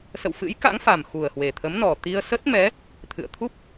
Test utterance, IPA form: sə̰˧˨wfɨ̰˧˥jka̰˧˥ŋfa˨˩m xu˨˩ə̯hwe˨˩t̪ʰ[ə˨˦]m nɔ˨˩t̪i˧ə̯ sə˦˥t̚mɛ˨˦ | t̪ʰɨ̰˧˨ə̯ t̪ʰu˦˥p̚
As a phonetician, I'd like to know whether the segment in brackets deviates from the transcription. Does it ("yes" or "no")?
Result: no